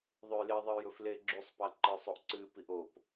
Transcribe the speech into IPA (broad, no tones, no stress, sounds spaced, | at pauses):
ðˤ ʉ j l e ðˤ ɨ j ɵ f l e ɡ͡ǁ ʉ sˤ p a ǃ ɨ sˤ o ʔ ǀ ɨ p i ʔ o p